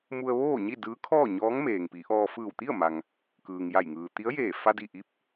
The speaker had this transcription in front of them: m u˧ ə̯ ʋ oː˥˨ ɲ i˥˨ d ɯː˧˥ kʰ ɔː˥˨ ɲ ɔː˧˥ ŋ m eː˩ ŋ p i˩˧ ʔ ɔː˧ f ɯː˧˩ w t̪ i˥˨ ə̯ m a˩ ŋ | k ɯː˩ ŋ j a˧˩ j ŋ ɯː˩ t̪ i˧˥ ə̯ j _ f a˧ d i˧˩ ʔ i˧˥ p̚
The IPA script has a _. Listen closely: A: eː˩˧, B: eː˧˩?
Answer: B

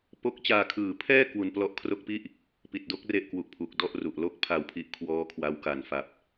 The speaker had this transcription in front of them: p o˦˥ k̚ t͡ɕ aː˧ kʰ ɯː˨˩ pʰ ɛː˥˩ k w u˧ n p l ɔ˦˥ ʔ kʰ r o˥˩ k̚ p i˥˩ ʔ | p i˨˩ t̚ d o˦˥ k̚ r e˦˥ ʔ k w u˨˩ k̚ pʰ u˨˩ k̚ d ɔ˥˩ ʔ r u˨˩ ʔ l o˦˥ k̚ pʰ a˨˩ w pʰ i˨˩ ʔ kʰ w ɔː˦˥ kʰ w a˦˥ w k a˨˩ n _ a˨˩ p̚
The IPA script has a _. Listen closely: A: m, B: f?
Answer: B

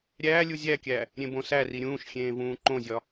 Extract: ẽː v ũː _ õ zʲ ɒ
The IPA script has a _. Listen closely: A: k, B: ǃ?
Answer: B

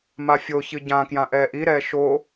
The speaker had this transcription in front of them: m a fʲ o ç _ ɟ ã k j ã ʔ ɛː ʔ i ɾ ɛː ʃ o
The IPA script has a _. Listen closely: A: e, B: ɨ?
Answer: B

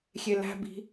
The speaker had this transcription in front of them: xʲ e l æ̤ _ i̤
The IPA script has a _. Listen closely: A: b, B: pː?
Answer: A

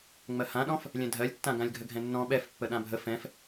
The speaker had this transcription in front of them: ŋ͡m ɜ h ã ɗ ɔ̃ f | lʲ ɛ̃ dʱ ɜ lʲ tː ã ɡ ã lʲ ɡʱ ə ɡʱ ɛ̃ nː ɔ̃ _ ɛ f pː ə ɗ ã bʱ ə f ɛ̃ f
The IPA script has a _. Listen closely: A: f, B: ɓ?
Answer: B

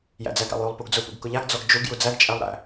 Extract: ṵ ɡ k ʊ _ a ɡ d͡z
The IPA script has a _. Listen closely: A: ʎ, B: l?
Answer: A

